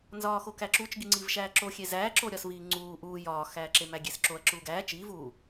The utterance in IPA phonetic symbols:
n z ɒː x o k æ ǁ u t͡ʃ ɡ i ŋ͡ǀ i v ʃ æː ǁ o xʲ e z æː ǁ o ɾʲ ɒ s v iː ŋ͡ǀ uː ʔ uː j ɒː x æː ǁ e m æ ɡʲ e s ǁ o ɐ̯ ǁ uː ɡ æː t͡ʃ iː v uː

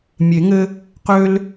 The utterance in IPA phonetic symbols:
mʲ e˨˩˦ ŋ ɘ˦ | q ø˦ l

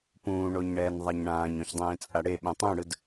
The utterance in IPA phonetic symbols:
p ũː ɳ o ɲ ɳ ɛː n ðˤ a ɲ ɳ ãː ɲ õ ç dˤ ẽː t͡sʼ a ɽ e ɓ ɛ̃ tˤ ũ ɽ ɯ d

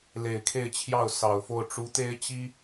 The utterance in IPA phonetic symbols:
l e˨˩ ɪ̯ kʰ e˥˧ ɪ̯ t͡ɕʰ j ɑ˥˩ ʊ̯ s ɑ˨˩ ʊ̯ f o˥˩ ʊ̯ ʈ͡ʂ u˧˥ t̪ e˥ ɪ̯ t͡ɕ i˥

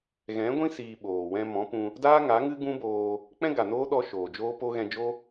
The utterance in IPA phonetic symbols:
ɣ ɛ̃˨˦ ɡʷ ĩ˦ s iː˧ ɓ oː˨ w ɛ̃˧ m ɔ̃˨˦ p ũ˧ | d aː˦ ŋ a˨˦ ŋ ɨ˦ ɡ ũ˦ b oː˧ | k͡p ɛ̃˦ ɡ a˨ n oː˦ ɗ ɔ˧ ʃ oː˨ d͡ʒ oː˦ p o˦ ɣ ɛ̃˧ d͡ʒ o˦

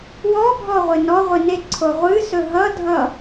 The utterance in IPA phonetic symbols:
w ɔ bʱ ɔ ʁʷ ɪ n ɔ ʁʷ ɪ n e ǀʰ o ʁʷ ɨ s ɵ ɦ ʌ dʱ ʌ

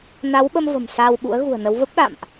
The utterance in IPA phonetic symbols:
n a˨˦ w ɓ ə˧ m v ə̤˨˩ m s aː˧ w ɓ ṵ˧˥ ə̯ ɣ ṳ˨˩ ə̯ n ə˨˦ w v ə˦˥ p̚ ɗ a̰ː˧˨ m ʔ

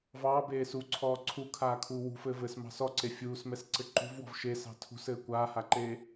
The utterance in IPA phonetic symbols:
v ɑː b eː s u ǀʰ ɔː ǀʰ u kʰ aː kʰ uː w ṳ f ɘː v ɘː s m ɑ̤ s ɔ ǀ e fʲ uː s m ɛ s ǀ ɘ ǃ ṳ v w ɔ̤ v ʃ e s ɑ̤ tʰ ṳ s ɘː kʷ aː h a ǃ eː

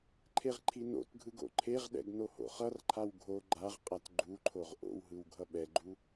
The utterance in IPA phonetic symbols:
ǃʰ e ʁ ǃʰ i n o̰ t ɡʱ ɯ ɡ o̰ ǃʰ e ʁ ɗ ɛ̰ ɡ n o h o̰ χ ʌ r ǃʰ a w ɡʱ o ɡ͡ǃ a ʁ qʼ a t ɡ͡ǃ u ǃʰ o ʁ ʔ o̰ w ɦ ɯ w ɡʱ ʌ ɓ ɛ ɡ͡ǃ u

